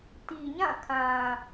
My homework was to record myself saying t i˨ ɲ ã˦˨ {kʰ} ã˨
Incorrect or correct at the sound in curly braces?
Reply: correct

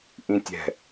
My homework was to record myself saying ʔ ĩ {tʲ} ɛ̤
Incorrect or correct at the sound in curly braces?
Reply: correct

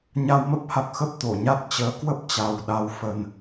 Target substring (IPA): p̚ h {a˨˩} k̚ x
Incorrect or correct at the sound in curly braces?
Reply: correct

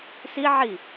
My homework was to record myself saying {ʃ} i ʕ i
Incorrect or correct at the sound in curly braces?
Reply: incorrect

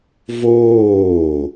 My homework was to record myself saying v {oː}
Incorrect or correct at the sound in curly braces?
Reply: correct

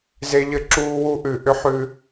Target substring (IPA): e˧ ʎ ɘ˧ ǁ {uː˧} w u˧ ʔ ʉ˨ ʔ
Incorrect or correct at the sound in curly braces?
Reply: correct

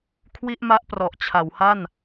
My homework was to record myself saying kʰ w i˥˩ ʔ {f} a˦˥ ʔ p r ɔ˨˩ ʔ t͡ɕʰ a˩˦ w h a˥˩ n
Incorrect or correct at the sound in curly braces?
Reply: incorrect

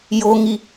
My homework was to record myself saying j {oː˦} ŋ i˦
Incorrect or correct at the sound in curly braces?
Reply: correct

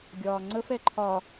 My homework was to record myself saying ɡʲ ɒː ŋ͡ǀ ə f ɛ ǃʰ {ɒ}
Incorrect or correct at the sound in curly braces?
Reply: correct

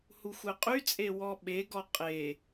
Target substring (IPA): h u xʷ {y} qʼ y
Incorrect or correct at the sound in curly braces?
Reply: incorrect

